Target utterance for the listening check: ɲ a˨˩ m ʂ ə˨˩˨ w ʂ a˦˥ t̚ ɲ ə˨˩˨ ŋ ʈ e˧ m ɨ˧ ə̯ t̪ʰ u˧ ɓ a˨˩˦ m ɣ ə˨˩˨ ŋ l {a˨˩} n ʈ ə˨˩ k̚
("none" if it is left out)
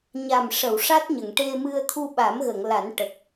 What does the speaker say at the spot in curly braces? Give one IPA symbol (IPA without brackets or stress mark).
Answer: a˨˩˦